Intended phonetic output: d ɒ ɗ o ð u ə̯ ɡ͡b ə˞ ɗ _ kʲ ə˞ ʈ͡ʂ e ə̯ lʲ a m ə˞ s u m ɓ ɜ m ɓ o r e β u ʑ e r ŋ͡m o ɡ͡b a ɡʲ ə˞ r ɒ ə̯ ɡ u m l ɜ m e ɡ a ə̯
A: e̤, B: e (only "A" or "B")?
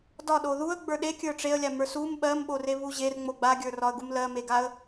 B